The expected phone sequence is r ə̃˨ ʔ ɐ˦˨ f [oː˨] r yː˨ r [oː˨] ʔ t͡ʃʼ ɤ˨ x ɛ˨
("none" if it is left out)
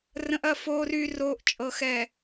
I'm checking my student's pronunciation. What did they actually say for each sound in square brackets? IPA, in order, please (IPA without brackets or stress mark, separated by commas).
oː˨, oː˨